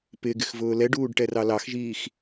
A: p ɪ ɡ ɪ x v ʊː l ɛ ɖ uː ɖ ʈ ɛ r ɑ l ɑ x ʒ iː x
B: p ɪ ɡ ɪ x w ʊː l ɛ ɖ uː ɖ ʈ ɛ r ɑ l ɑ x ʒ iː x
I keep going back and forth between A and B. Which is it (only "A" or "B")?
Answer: A